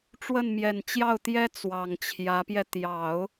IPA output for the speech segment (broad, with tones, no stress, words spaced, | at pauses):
ʈ͡ʂwə˥˩nmjɛ˨˩nt͡ɕjɑ˥˩ʊ̯t̪jɛ˥ t͡swɑ˨˩ŋt͡ɕʰjä˧˥pjɛ˧ t̪jɑ˨˩˦ʊ̯